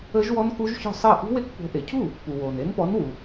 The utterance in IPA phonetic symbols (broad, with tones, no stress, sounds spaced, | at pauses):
əː˦˥ ʒ w ɔ˦˥ n k u˦˥ ʒ ç ɔ̤˥˩ sˤ əː˥˩ ʔ ṳ˦˥ w e˦˥ k p o̤˨˦ ʔ e˩ cʰ u˥˩ | p u˩ w oː˩ n e˨˦ n p ɔ˨˦ n w u˩